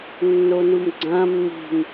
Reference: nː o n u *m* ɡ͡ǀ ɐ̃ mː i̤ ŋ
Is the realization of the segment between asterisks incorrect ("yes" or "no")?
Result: no